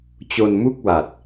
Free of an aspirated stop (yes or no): yes